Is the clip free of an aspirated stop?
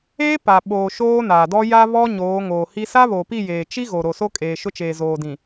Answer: yes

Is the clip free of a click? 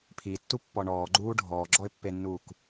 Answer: no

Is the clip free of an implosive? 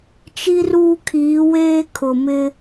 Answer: yes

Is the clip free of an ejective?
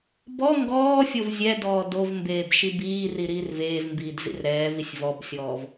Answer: yes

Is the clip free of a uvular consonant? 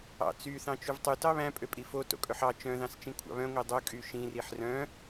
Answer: yes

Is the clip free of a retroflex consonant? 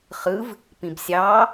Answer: yes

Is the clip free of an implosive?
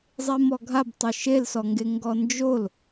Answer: yes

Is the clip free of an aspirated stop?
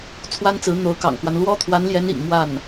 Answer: no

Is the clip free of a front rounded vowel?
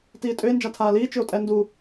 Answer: no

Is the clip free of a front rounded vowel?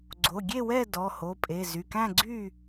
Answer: no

